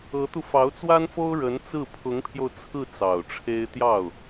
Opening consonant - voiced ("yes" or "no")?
no